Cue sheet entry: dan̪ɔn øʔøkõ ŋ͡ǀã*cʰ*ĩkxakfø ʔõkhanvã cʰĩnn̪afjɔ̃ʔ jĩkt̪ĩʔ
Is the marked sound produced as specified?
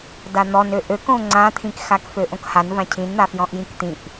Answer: no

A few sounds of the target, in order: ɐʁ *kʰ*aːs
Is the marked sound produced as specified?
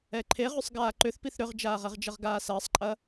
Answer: no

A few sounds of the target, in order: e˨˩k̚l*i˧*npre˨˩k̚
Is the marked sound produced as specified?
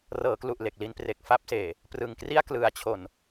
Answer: yes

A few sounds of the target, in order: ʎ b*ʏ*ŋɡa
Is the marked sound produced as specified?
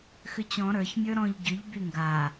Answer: no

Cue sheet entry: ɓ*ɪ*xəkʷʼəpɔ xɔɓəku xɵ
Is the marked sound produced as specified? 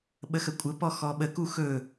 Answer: no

